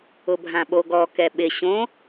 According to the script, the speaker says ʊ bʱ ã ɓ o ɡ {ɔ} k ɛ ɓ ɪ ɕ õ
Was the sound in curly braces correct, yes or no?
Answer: yes